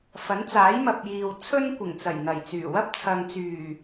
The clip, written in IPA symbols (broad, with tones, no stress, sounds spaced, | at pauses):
f ɐ˨˥ n t͡s aː˨˥ j m ɐ˨ p̚ j iː˨ w t͡sʰ ɵ˥ n kʷ ɪ˨˩ ŋ t͡s ɐ˨˩ j n̪ ɐ˨˩ j t͡s yː˨˩ w ɐ˥ p̚ t͡sʰ ɐ˨ ŋ t͡s yː˨˩